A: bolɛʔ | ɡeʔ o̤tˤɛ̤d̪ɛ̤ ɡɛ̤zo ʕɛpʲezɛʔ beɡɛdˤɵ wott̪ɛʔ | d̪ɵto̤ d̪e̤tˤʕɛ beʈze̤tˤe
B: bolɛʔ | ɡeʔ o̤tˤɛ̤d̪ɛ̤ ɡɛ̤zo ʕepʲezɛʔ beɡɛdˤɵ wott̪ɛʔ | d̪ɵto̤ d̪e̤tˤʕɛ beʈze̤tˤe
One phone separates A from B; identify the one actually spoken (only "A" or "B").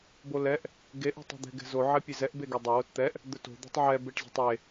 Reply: A